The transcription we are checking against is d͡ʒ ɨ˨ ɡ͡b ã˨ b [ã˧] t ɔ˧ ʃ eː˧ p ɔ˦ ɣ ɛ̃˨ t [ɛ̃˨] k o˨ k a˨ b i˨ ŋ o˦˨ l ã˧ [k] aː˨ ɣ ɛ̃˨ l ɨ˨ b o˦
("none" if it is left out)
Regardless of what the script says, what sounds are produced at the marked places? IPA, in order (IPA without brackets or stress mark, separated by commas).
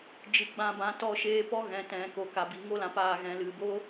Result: ã˨, ɛ̃˨, p